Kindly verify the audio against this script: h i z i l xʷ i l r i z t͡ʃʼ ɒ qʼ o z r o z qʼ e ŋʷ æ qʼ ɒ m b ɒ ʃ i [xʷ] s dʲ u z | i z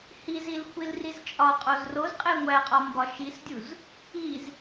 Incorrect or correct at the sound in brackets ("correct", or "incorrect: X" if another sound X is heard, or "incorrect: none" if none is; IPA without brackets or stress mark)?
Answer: incorrect: none